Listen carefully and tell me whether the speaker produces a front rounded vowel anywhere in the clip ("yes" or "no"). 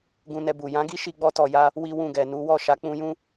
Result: no